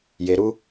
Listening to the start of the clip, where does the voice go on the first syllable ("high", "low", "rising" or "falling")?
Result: low